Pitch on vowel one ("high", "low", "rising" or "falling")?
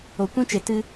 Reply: low